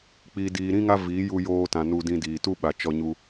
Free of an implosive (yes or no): no